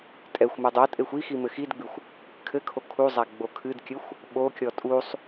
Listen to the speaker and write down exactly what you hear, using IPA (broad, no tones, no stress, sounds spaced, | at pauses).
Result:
tʼ ɛ xʷ m ɨ dˤ o tʼ e xʷ i x i m ɘ x i d ɡ͡b ɨ xʷ | kʰ ɘ kʰ o kʰ u zˤ a ɡ͡b o kʰ ɨ d kʲ ɘ xʷ | ɓ o kʲ ɔ tʼ u sˤ